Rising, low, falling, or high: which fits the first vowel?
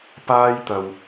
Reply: high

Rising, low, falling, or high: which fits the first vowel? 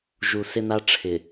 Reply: low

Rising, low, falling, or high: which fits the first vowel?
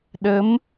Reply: rising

